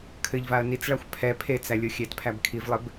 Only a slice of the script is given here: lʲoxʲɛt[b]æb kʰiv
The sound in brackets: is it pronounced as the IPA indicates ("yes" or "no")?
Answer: no